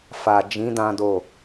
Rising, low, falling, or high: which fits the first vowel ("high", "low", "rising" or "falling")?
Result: low